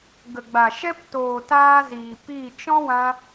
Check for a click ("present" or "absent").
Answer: absent